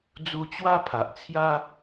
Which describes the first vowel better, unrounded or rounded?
rounded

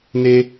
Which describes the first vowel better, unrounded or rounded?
unrounded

